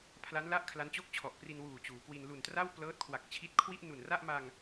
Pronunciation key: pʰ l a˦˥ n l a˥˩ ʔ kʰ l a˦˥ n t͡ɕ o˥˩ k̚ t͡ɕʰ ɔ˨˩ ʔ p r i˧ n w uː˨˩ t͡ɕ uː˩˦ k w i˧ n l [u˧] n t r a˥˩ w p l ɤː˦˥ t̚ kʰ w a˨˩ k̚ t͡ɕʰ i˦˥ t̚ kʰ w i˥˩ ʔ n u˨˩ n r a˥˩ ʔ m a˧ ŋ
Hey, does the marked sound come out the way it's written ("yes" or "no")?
no